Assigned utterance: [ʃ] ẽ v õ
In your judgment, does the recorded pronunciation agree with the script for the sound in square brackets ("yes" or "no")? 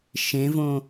yes